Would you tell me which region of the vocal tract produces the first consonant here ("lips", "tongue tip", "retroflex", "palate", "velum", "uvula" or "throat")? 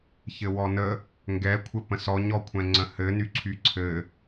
palate